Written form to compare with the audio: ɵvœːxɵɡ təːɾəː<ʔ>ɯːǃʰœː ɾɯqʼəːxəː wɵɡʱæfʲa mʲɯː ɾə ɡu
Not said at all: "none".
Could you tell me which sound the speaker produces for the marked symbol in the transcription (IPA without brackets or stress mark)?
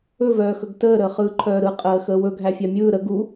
χ